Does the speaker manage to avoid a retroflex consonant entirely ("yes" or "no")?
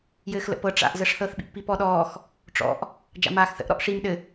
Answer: no